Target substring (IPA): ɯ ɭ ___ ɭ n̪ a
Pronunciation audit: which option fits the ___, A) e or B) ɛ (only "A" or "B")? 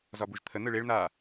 A